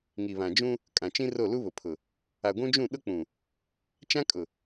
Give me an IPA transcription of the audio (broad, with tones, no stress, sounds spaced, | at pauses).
ŋ i˨ β ã˨ d͡ʒ ũ˦ | kʼ ã˨ t͡ʃ ĩ˦ r o˦˨ l u˦ β ʊ˨ pʰ ʊ˨ | a˨ ɡʷ ũ˦ d͡ʒ ũ˦˨ ɗ ʊ˦ k͡p ũ˨ | t͡ʃ ã˦ kʼ ʊ˨